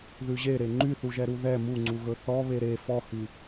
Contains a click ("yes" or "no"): yes